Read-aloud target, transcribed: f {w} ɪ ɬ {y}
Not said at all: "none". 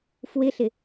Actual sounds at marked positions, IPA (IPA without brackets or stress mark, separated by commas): w, ɪ